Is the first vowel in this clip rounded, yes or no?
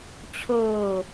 yes